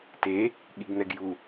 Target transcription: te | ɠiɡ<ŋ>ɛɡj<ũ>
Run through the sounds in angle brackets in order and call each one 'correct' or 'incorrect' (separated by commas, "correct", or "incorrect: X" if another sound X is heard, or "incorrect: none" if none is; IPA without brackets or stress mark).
incorrect: n̪, incorrect: u